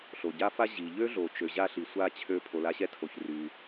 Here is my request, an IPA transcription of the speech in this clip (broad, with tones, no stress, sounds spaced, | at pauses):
ɬ o˩ ɟ a˥ f a˥ ʑ i˩ ʎ ø˥ ɮ o˩ t͡ʃ ø˩ ʑ a˥˩ ɬ i˩ sʷ a˥˩ t͡ɕʰ ø˥˩ pʰ o˩ l a˧ ɕ ɛ˥ tʰ o˩ ç r y˩